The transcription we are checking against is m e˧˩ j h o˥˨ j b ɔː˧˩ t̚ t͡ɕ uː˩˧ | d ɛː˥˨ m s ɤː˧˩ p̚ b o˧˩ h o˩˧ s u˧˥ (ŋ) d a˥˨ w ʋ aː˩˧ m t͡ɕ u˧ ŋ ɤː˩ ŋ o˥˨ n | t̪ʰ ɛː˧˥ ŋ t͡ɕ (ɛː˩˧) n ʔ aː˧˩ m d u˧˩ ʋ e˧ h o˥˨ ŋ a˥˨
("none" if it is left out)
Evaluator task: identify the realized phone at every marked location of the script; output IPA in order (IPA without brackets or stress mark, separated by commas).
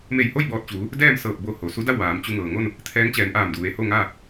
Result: none, ɛː˩˧